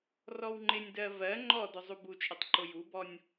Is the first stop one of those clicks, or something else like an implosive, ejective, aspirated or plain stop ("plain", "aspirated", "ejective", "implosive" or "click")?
click